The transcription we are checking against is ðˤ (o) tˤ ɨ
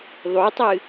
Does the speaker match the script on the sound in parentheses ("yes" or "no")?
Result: yes